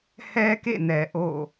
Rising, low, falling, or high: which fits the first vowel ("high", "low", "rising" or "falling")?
high